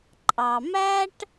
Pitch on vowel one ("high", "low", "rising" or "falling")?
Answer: low